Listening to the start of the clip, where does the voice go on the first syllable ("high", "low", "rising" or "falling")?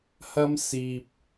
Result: high